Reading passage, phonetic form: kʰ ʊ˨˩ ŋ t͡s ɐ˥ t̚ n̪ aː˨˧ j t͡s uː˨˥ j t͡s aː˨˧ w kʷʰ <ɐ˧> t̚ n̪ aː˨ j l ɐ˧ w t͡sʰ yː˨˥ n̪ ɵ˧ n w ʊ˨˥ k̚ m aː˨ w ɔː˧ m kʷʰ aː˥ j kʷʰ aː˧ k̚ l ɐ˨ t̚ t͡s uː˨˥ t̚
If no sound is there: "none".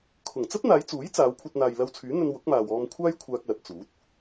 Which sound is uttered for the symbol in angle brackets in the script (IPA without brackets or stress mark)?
ɐ˧